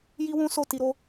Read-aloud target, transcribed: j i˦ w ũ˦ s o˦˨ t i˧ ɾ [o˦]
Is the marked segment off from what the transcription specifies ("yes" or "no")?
no